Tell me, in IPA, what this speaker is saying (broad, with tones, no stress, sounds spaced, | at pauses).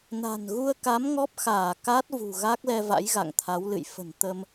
n a̤˨˩ n ɣ u˧ ə̯ k a˨˦ m ŋ ɔ˦˥ p̚ x aː˧˩ k a˦˥ t̚ v ṳ˨˩ ɣ a˦˥ k̚ l ɛ˧ v a̰˧˥ j ɣ a̰˧˨ ŋ t̪ʰ a˨˦ w l ɨ̰˧˨ j f ə̤˨˩ n t̪ ə˧ m